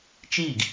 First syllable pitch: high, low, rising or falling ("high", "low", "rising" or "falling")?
falling